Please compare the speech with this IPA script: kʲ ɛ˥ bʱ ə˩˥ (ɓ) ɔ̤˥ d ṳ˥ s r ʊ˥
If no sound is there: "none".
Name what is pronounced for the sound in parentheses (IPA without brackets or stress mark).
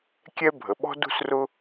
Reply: ɓ